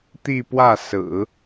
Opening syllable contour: falling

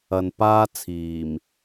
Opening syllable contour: low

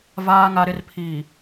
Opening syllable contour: low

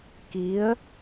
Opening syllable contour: rising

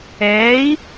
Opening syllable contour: rising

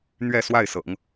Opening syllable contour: falling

